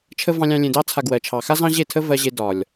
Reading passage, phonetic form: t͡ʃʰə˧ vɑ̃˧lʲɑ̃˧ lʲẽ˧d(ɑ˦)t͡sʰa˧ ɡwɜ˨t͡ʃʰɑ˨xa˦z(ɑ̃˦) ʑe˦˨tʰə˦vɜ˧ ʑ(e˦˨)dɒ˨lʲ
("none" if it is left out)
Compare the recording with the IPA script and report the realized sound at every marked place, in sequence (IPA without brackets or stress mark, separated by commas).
ɑ˦, ɑ̃˦, e˧